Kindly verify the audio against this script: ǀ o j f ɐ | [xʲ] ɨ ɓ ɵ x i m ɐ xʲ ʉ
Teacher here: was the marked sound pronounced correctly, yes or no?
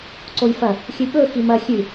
yes